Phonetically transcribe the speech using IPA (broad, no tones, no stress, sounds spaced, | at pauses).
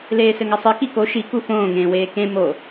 l eː s ɘ ŋ ɐ sˤ ɨ k i k o ʃ i k u f õː ŋ ẽː w eː k ẽ m o